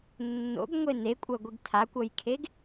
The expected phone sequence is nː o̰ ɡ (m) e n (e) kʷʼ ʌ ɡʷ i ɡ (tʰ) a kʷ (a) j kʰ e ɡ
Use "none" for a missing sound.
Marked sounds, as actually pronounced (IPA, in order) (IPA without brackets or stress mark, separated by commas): ŋʷ, e, tʰ, ʌ